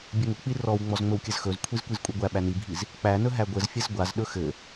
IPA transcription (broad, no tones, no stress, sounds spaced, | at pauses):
bʲ ɘ ŋ ɵ k͡p i r ɔ w ŋ͡m ɔ z ŋ͡m ɵ w kʲ ɘ z x ɵ z kʷʰ i z kʷ i z kʷʼ i ɡʷ æ ɓ æ n i bʱ i z | k͡p æ n ɵ ɦ æ ɡʷ ɘ z fʲ ɘ z ɡʷ a z ɗ ɵ x ɘ